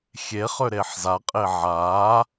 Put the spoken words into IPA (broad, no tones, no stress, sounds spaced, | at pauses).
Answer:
xʲ e χ ø ɾ e ħ z a qʼ e ʕ a